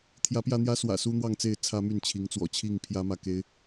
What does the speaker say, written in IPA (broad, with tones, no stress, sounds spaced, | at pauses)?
t̪ʰ j ä˨˦ p j ä˧ n̪ j ä˦ s w ä̰˨˩ s u˦ n̪ w ɑ˥˨ ŋ t͡s e˥˨ ɪ̯ t͡sʰ ä˦ m y˥˨ n t͡ɕʰ i˨˦ ŋ t͡s w ɔ̰˨˩ t͡ɕʰ i˥˨ ŋ pʰ j ä˦ m ä˥˨ k e˦ ɪ̯